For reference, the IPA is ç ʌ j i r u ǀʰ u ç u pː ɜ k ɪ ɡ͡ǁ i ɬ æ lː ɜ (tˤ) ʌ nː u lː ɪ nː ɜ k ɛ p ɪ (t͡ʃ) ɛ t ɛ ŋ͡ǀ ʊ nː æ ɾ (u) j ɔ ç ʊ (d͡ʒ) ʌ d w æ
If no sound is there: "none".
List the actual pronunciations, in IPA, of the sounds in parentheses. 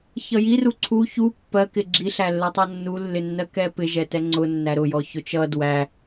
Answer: tˤ, ʒ, ʊ, t͡ʃ

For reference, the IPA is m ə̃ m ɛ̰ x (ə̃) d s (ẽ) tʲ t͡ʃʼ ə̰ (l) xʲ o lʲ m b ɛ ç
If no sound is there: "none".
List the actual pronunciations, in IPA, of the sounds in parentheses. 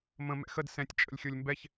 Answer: ə, ɛ̃, lʲ

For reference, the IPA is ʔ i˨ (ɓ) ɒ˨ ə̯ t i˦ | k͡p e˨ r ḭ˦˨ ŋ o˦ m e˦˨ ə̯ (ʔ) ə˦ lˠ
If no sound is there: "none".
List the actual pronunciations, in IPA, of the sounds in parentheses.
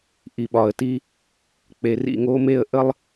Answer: ɓ, ʔ

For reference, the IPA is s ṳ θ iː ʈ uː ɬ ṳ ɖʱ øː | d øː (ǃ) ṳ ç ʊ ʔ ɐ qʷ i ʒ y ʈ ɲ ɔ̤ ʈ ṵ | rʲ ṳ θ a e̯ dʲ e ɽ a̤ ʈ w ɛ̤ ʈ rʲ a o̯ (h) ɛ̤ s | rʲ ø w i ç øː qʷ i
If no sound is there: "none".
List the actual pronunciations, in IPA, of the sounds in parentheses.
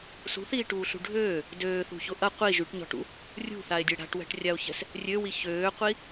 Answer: θ, ç

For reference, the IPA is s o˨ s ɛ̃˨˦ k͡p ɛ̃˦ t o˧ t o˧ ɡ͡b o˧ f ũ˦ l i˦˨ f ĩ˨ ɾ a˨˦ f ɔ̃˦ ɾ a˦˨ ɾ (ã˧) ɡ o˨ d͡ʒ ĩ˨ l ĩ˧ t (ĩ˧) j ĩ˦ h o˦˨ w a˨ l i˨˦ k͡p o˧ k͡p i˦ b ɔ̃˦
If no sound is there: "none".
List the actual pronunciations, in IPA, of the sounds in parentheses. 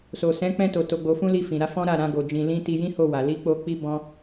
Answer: ã˧, i˧

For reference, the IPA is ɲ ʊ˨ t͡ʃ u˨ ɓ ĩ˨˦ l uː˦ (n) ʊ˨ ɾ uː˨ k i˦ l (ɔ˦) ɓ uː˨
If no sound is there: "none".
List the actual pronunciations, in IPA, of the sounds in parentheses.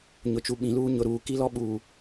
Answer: ɲ, ɔ˦

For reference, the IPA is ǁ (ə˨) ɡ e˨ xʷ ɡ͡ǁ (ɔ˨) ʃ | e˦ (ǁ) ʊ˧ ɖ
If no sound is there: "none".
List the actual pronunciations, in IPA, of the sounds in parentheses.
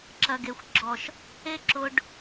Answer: ɐ˨, ɔ˨, ǁ

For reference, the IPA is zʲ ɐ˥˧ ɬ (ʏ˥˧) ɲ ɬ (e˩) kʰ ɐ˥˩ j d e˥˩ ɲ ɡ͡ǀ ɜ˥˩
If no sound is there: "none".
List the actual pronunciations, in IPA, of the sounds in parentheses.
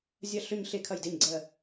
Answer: ʏ˥˧, e˥˧

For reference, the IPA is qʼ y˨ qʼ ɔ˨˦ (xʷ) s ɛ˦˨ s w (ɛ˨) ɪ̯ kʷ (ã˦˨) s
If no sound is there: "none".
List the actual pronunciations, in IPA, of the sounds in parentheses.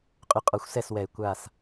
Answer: xʷ, ɛ˨, a˦˨

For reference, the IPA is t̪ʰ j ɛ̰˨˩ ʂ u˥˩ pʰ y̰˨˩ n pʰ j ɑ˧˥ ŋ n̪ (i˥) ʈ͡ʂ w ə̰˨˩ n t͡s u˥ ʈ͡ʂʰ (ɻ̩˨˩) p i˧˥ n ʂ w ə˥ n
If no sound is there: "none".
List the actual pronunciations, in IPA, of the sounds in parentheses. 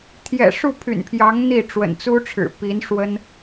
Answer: i˥˩, ɻ̩˨˩

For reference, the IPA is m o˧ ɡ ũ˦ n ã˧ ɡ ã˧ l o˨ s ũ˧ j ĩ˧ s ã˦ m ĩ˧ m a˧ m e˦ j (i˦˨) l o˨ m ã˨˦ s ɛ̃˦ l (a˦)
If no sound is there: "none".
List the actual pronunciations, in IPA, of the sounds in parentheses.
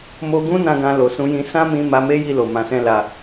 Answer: i˦˨, a˧

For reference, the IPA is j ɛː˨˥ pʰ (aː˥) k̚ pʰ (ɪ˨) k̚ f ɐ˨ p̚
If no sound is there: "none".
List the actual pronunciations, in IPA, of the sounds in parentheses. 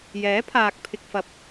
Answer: aː˨, ɪ˨

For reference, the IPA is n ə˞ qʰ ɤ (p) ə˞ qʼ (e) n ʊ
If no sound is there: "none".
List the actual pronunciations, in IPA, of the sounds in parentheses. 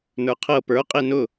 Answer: p, e

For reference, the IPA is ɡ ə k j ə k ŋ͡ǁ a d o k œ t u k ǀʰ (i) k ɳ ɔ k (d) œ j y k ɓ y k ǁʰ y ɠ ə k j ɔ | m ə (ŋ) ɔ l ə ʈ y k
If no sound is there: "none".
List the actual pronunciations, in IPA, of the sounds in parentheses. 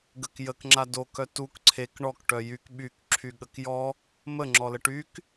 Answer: e, ʈ, ŋ͡ǁ

